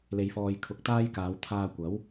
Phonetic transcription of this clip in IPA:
l e˨ j f ɔː˨ j kʰ ʊ˨˥ k̚ t̪ aː˥ j k aː˨˧ w t̪ʰ aː˧ kʷ ɐ˨˥ w

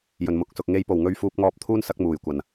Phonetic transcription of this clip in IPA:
j ɵ˨˩ n m ʊ˨ k̚ s ʊ˨ k̚ ŋ e˧ j p o˨˩ w ŋ ɵ˧ ɥ f uː˧ p̚ ŋ ɔː˧ p̚ t̪ʰ uː˥ n s ɐ˥ k̚ m uː˨˩ j kʷ ɐ˨˩ n

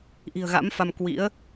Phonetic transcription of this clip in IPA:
ʔ i̤˨˩ ə̯ ɣ a̰˧˥ m f a˧ m k w ḭ˧˥ ə̯

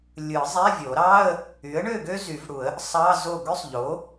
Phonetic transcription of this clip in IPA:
lʲ ɯ˨˩˦ zˤ æ˧˥˧ vʲ o˨˩˦ ɾ ɑ˧˥˧ ə̯ | y˩˥ ə̯ ɳ ø˥˨ ɡ ø˥ z y˨˩˦ v ɽ u˨˩˦ ə̯ | sˤ ɑ˧˥˧ z o˥˨ ɡ ø˥ sˤ ʎ o˩˥

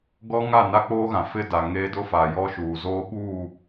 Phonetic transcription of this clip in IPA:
ɡ ɔ˦ ŋ a˦˨ n a˦ k͡p oː˦ ɣ ã˨ f ɪ˦ d a˨ ŋ eː˦ d ʊ˦ f a˨ j ɔ˦ ʃ uː˨ z oː˦ ɓ uː˦˨

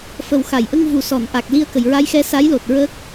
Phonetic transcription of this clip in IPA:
f ə˨˩ w x a˨˩˨ j ʔ ə˧ ŋ v u˨˩ s ɔ˨˩˨ n ʔ a˨˩ k̚ l i˧ ə̯ k ə˨˩˨ j ɹ a˧˥ j x ɛ˧˥ s a˧˥ j l o˨˩ t̚ ɹ ə˦˥ k̚

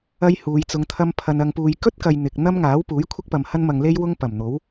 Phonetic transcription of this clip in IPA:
ɐ˥ j h uː˨˧ j t͡s ʊ˧ ŋ t̪ʰ ɐ˥ m pʰ ɐ˧ n ɐ˧ ŋ p uː˧ j k ɵ˥ t̚ k ɐ˨ j n̪ ɪ˨ k̚ n̪ ɐ˥ m ŋ aː˨˥ w p uː˨˥ j kʷʰ ɪ˥ k̚ p ɐ˨ m h ɐ˥ n m ɐ˧ ŋ l e˥ j w ʊ˥ ŋ p ɐ˨˩ m n̪ o˨˥ w

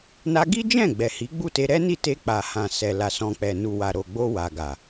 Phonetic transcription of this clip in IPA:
n a˦ ɡ i˦ d͡ʒ ɛ̃˦˨ ɡ͡b ɛ˨ h i˨˦ ɡ͡b u˦˨ t e˧ ɾ ɛ˦ n i˦˨ t e˧ k͡p a˨ h ã˨ s ɛ˨ l a˨ s ɔ̃˨ k͡p ɛ˨ n u˨ w a˨ ɾ o˨ ɡ͡b o˧ w a˨ ɡ a˨

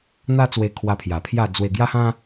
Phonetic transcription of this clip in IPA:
n̪ a˦ t͡s w e˧ kʰ w a˧ pʰ j a˨˩ pʰ j a˥˧ d͡z w e˧ ɡ j a˦ h ã˦

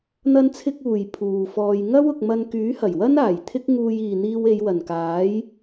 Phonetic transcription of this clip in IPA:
n̪ ɐ˥ n t͡sʰ ɪ˥ k̚ uː˨ j pʰ uː˨ f ɔː˧ j ŋ ɐ˥ w ʊ˨ k̚ m ɐ˧ n k yː˨˥ h ɐ˨˩ j w ɐ˥ n aː˨˩ j t̪ʰ ɪ˥ k̚ ŋ uː˧ j iː˨ n̪ iː˧ w e˨˧ j w ɐ˨˩ n k aː˨˥ j

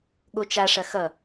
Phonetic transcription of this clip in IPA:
ɠ o t͡ʃ a ʂ ɐ x ʌ

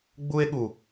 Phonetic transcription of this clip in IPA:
ɡ͡b u˦ e̯ ɠ u˨

